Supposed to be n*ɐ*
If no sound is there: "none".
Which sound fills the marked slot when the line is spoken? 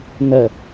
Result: ə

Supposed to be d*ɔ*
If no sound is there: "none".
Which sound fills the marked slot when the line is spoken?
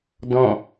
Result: ɔ̃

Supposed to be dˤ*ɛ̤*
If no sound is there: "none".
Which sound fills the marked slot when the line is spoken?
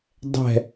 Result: ɛ̤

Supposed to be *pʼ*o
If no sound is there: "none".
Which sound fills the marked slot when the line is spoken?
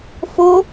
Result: f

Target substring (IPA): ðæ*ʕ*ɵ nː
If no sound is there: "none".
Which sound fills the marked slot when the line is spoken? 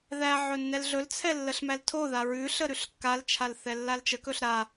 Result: ʕ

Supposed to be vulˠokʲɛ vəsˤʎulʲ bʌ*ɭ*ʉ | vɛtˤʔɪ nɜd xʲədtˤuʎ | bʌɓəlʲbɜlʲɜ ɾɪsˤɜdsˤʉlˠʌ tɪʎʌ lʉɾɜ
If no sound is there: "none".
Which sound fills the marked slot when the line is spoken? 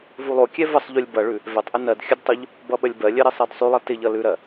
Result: ɭ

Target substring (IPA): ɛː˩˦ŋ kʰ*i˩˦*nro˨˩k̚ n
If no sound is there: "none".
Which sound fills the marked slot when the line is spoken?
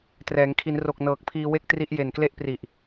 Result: i˩˦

